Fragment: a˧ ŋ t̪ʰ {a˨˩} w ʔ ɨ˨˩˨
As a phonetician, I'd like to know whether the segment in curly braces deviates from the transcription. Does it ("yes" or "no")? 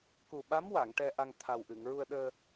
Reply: no